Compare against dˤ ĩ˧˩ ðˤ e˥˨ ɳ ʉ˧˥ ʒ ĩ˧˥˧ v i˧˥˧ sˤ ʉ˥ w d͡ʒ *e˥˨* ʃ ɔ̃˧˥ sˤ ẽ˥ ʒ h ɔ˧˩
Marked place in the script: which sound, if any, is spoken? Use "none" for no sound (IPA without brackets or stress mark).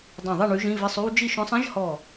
i˥˨